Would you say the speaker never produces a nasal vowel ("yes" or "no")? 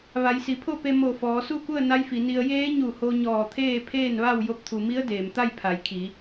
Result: yes